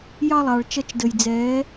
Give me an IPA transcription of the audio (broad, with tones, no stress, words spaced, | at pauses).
jɑ˦lˠɑ˨ɭ t͡ʃʌ˦t͡ʃ də˨jd͡zɛː˨˦